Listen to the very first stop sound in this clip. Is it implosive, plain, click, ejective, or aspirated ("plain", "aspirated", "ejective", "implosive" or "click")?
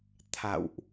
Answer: aspirated